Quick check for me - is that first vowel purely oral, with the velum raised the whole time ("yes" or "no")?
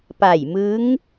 yes